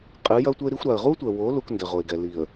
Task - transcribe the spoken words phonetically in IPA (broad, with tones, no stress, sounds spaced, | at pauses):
qʼ ɨ˨˦ j ɐ˦ ʊ̯ tʷ ɛ˦ ɪ̯ ɾ i˦ xʷ ɾ a˨ ə̯ ʁ u˦ tʷ ɛ˨ w o˨˦ l u˦ k n d ɘ˨ ʁ o˨ ɪ̯ ɡ ɛ˨ l i˨ ə̯